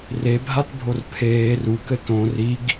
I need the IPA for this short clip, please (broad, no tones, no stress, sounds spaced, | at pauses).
r e bʱ a t bʱ o r pʰ eː r u k ɘ t õ r i ɡ